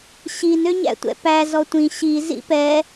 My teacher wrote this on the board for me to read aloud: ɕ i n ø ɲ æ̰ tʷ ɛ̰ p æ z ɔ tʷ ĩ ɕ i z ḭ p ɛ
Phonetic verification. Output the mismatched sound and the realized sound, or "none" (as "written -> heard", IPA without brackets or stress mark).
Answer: none